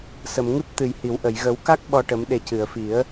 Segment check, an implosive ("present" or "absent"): present